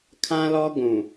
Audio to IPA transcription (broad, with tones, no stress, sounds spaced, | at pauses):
kʰ ã˦ l ɔ˦ ɡʷ ũ˨